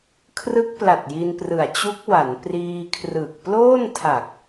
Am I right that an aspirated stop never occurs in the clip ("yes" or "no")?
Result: no